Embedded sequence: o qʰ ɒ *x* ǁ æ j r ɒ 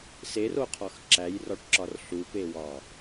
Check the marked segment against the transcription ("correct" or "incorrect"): correct